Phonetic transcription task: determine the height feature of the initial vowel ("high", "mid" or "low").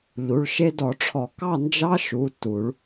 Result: high